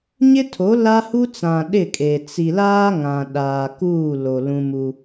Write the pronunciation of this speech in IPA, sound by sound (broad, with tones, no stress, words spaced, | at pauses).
ɲɪ˦tʰo˨˦ la˦hu˦t͡sã˨ ɗɪ˦˨kʼe˨ t͡si˨laː˦ŋã˨ ɗaː˨ kuː˦˨ lo˨ lũ˦mu˦